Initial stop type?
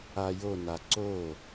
click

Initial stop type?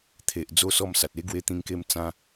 aspirated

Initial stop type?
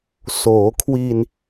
aspirated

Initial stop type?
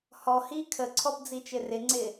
aspirated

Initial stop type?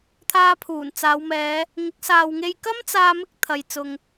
aspirated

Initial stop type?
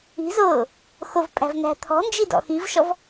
ejective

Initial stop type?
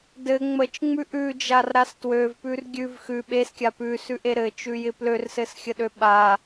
plain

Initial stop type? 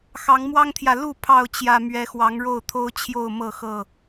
aspirated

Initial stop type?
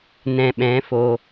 implosive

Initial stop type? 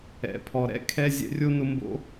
aspirated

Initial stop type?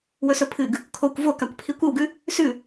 aspirated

